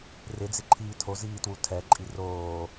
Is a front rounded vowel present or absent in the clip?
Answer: absent